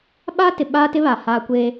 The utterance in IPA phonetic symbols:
ɓaː˦tɪ˨ ɓaː˦tɪ˦ βa˨haː˦kʷeː˦

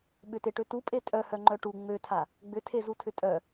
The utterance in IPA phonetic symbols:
ɓʏteʈø tupʼe tʼœhœŋ͡ǃœ ʈu ŋ͡møtʰa | ɡ͡bʏtʰezutʰʏ tʼœ

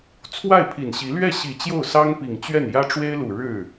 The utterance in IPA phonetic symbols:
t͡sʰwa˥˩ɪ̯pʰi˨˩nɕi˧˥ lɥɛ˥˩ɕi˨˩ t͡ɕjo˥˩ʊ̯sɑ˥ŋpi˨˩ŋt͡ɕɥɛ˥˩n jä˥ʈ͡ʂwe˥ɪ̯lu˨˩ɻɻ̩˥˩

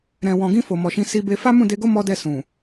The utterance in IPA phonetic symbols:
ɾɛ̃˨wɔ̃˨ɡĩ˧ fo˨mɔ˨ʃĩ˨˦ si˦be˦ fa˦mũ˦˨de˧ɡo˦ mɔ˦dɛ˦˨ sũ˨

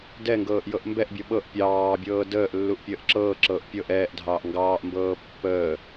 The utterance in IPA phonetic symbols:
dɛ ŋɡɤːʔjɤʔmbɛʔbʲɤ ɓɤʔ pʲɑːbʲɤː dəːʔ lːuʔpʲəːʔǁɤːǁɤːʔ pʲɤʔ ɛːʔdʱɑːʔ ŋɡɑːʔmbɤː pːəː

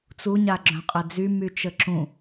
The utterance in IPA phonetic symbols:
t͡su ɲaɡ͡ǁœ̃qʼɛd͡zy myt͡ʃəǁũ

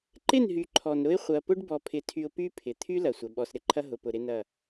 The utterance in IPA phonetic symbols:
ǃɪ˦˨nɦy˨ ǃʰɔ˨nɾʊ˦ɪ̯ χʷɐ˨ pʊ˦ɖbɔ˨pʰɪ˨tʰy˨ʊ̯ py˦ pʰɪ˨ t̪ʰy˦ lɐ˨sʷɐ˨ ɓɔ˨sɾɪ˨ǃʰɐ˦ ɦʊ˨pʊ˨ ɾɪ˦nɐ˦˨

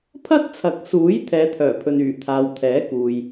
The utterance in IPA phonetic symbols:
pʰɐ˥t̚t͡sʰɐ˨˥k̚suː˨˥j t̪ʰɛː˨˧t̪ʰœː˨˩pʰɵ˨nyː˨˩ t̪ʰaː˨wt̪ʰɛː˨˥kuː˨j

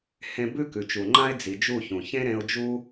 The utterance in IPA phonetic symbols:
hẽ˧ bʉ˦kʉ˨t͡ʃu˨ŋ͡ǃã˦ɪ̯ d͡zi˨ d͡ʒu˦˨çũ˨ çẽ˦ɾẽ˧ʊ̯d͡ʒu˦

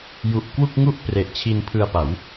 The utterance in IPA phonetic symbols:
ju˨˩ʔkwu˥˩k̚ŋu˥˩ʔ pre˨˩ʔt͡ɕʰi˧npʰɯ˧a̯pa˩˦w

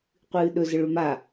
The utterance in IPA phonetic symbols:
qʷɨːɗɵzəɭɵ ma

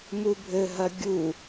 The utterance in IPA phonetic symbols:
mubʱɘɦɐ ɡʲu

